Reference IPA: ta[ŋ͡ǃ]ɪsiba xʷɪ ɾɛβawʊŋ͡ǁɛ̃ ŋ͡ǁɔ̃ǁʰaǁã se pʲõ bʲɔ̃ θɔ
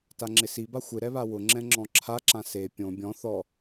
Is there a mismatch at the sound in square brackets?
yes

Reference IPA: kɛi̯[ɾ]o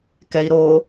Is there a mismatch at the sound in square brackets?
no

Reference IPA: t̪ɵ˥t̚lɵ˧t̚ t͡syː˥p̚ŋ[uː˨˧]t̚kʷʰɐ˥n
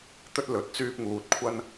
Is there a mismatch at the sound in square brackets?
yes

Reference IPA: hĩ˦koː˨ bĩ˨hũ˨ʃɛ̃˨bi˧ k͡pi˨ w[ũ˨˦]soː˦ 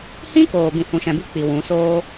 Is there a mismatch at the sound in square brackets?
no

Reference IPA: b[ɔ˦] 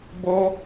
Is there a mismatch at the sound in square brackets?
yes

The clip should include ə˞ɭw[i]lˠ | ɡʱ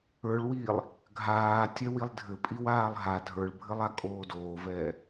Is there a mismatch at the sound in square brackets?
yes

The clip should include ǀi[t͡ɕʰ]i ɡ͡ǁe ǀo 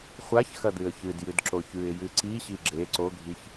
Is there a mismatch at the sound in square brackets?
yes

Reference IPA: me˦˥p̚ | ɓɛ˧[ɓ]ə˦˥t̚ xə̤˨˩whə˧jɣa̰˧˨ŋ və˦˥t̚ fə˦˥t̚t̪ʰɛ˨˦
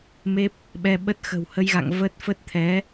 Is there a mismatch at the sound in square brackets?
no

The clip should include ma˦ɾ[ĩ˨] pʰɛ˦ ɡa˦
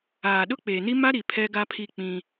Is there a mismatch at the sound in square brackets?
yes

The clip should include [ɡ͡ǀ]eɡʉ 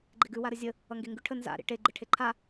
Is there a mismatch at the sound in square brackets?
yes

